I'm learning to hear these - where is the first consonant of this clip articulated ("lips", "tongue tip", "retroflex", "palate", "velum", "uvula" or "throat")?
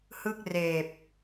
throat